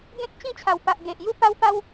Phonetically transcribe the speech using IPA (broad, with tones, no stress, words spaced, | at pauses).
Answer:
ɡẽ˦k̚ t͡ɕĩ˥˧t͡ɕʰa˨˩wpa˨ʔ ɡe˨ʔ ju˦ pa˦wpa˦w